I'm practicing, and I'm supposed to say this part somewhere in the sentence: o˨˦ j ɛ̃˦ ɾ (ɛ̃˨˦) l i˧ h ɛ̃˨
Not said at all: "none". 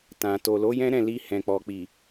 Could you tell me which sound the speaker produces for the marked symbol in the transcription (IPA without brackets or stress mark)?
ɛ̃˦˨